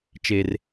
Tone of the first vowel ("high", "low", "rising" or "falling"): low